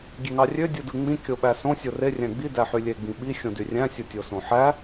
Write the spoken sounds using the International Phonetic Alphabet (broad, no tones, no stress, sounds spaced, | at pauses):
ɡʲ e ŋ ɑ rʲ ø dʲ ɯ d ɯ ŋ͡m ĩ kʲ o ɓ æ s õ sʲ o r e rʲ æ̃ ɡ͡b i d æ ħ y lʲ e ɡ͡b ĩ ɓ i xʲ õ d y rʲ æ̃ sʲ u tʲ o s õ ħ æ